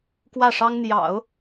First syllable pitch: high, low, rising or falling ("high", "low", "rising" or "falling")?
falling